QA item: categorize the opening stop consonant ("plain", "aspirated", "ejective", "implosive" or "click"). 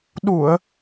implosive